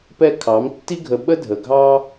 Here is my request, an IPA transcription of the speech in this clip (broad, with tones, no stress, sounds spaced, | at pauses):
p ɛ˦ kʰ ɑ˨˦ m tː i˧ ɡʱ ə˨ ɓ ə˦ dʱ ə˨ ɡʱ ɑ˦